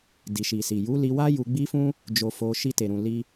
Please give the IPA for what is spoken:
di˨ʃi˨si˨ ju˨˦li˧wa˦ ju˧ɡ͡bi˦fũ˦ | d͡ʒo˧fo˧ ʃi˧te˨ɾũ˨ li˧

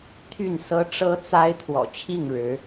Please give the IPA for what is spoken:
t̪ʰy˥˨nsɤ˦ ʈ͡ʂɤ˦t͡sa˦ɪ̯ t̪ʰwɔ̰˨˩t͡ɕʰi˥˨ŋɻɻ̩˨˦

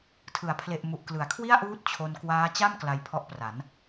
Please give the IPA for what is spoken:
tʰɯ˩˦a̯pʰle˨˩ʔ mu˨˩ʔklɯ˩˦a̯kʰwi˥˩a̯ʔuː˦˥t̚ t͡ɕʰo˧n kwaː˦˥ t͡ɕa˥˩m kla˧jpʰɔ˦˥ʔpra˩˦n

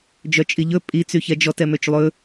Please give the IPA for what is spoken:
d͡ʒœt͡ʃʼiʎɵ pʼi t͡syçɛd͡ʒɔt ɛmøt͡ʃlˠɵ

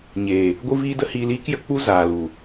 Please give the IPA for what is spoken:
ɲeː˨ | ɡʷɨ˦viː˦də˦ hiː˧liː˦kjə˧k͡pu˦ zaː˨lu˨

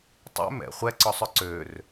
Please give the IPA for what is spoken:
tˤɛ̰ mɛ̰ χʷɛǀɔsˤœ ǀør

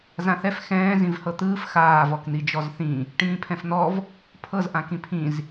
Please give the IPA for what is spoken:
zãθɛf xɛ̃ː zĩvhɤt̪ɯːf xaːv ɔkn̪id͡ʒɔzθĩ | ʈĩːpʰɛ̃fn̪ɔv | pʰɤz ʔãkĩpʰĩz

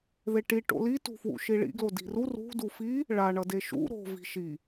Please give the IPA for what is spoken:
ðeʈi ʈo̰li tṳfwṵʃiɭḭ ɡlodi̤ru rṳ dufi | ɭa ɳʌdeʃṵ ɾo̤ vi̤ʃi

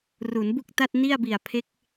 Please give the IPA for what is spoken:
ru˩˦nbu˥˩k̚ta˥˩t̚ni˥˩a̯ bi˨˩a̯pʰe˦˥k̚

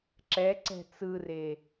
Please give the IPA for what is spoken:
ǁɛǀɛ̤ t͡sɯre

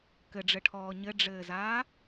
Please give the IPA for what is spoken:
kɘɖ͡ʐɘʈʰɔː ɲɘɖ͡ʐɘːzaː

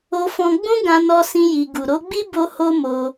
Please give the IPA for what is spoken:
o˦fɔ̃˦ ɡ͡bũ˦ɡã˧nɔ˧ sĩ˦ji˧ ɡu˨ɾo˨˦ɡ͡bi˦ bo˦ ho˦mo˧

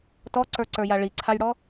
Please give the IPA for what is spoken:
tɔǀə˞ǀə˞ja ɭiǀʰajɽɔ

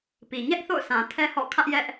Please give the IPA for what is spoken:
pi˨ ɲɛ˦ʔθo̰˦˨ʊ̯ sã˨tʰɛ˦hɔ̰˦˨kʰä˦ʔ jɛ˦ʔ

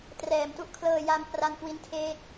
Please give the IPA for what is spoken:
trɛː˩˦mtu˦˥ʔkʰlɤː˧ja˧m pra˧nkwi˦˥ntʰeː˦˥k̚

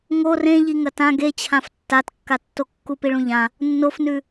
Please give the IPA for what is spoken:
ŋo rẽ ʎiŋɐtã ɡet͡ɕʰãf tːatkːatːokːu piɭũʎã | nːofnʉ

